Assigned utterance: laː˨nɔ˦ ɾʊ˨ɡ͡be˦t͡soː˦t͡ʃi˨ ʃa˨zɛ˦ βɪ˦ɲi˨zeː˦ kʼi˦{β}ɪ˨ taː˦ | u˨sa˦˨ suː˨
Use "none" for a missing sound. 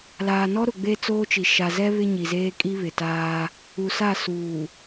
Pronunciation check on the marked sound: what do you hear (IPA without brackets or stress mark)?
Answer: β